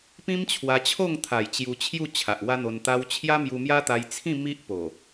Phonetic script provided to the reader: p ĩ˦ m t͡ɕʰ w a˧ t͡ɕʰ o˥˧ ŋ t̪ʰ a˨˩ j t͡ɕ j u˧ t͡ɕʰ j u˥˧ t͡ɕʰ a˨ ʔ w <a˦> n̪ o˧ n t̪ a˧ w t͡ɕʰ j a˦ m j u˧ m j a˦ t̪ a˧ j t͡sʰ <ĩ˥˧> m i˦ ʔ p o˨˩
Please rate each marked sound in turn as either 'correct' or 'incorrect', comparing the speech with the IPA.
correct, correct

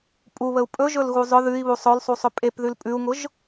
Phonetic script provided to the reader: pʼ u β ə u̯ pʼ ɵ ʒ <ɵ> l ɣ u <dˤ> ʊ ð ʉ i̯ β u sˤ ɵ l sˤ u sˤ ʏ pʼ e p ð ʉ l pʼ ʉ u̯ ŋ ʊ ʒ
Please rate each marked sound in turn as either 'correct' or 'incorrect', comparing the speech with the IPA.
correct, incorrect

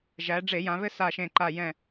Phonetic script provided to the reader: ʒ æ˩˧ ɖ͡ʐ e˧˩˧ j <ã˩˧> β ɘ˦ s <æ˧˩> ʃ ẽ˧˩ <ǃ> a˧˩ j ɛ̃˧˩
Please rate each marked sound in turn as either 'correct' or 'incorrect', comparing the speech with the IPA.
correct, incorrect, correct

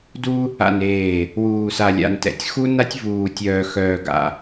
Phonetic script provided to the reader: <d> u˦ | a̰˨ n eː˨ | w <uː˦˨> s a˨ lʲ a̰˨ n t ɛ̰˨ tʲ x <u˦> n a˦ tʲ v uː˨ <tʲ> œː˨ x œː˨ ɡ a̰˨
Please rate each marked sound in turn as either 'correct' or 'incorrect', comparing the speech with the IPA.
correct, incorrect, correct, correct

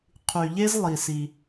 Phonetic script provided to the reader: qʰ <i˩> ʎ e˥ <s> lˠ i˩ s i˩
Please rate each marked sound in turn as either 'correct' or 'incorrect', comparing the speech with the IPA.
incorrect, incorrect

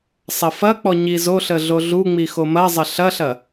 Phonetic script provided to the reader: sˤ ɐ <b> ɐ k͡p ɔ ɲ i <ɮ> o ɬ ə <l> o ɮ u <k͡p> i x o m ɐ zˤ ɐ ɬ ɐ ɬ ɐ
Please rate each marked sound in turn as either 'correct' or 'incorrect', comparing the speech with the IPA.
incorrect, incorrect, incorrect, incorrect

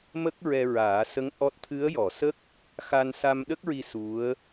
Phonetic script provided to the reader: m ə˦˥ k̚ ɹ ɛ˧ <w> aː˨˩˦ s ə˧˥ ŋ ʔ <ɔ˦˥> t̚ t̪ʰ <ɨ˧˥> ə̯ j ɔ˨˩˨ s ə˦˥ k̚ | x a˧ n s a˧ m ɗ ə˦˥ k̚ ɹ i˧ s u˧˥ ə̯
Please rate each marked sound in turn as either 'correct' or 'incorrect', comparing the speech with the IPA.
incorrect, correct, correct

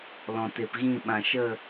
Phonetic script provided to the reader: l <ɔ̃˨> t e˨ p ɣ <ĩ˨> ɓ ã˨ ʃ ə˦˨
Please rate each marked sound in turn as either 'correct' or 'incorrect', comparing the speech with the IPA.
correct, incorrect

